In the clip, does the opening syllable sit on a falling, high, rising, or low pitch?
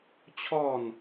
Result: falling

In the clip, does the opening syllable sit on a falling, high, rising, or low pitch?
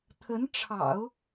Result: rising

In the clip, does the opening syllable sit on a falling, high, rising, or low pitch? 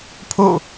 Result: falling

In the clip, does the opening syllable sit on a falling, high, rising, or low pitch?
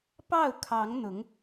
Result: falling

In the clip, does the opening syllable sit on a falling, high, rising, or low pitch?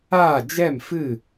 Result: falling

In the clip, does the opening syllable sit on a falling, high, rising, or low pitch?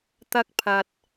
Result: high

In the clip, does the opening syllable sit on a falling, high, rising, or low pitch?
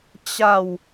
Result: falling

